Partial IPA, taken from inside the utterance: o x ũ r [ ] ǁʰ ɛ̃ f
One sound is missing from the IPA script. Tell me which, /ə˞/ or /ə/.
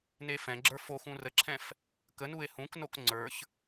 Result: ə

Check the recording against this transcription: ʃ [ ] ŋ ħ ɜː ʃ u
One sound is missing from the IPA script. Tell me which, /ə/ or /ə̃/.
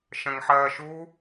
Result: ə̃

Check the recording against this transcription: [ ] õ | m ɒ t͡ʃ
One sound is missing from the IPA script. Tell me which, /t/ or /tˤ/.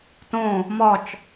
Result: t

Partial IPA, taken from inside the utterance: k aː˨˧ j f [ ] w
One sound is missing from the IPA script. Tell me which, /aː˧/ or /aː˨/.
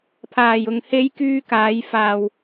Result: aː˨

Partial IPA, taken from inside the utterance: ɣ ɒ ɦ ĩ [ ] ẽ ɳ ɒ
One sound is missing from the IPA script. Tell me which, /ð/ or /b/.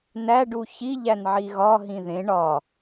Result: ð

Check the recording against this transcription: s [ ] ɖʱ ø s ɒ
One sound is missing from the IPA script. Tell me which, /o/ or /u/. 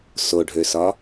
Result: o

